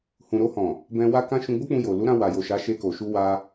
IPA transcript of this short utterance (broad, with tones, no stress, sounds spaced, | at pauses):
h ũ˨ ɾ o˧ h ɔ̃˨ | b ɛ̃˧ w a˦ k ã˦ ʃ ũ˧ ɡ͡b o˦ k͡p ũ˧ j o˨ l u˨˦ ɾ ã˧ w a˨ j o˨ ʃ a˨˦ ʃ e˧ k o˨ ʃ u˧ w a˧